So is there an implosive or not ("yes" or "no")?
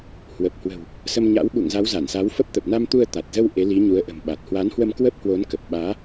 yes